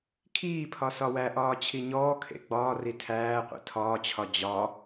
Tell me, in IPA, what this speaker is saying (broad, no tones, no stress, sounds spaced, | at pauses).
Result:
kʰ iː pʰ ɒ s ɒ w æ ʔ ɒː t͡ɕʰ i ɲ ɔː kʰ ḛ ɡ͡b ɒː r i tʰ æː qʷ ḛ tʰ ɒː t͡ɕʰ ɒ d͡ʑ ɒ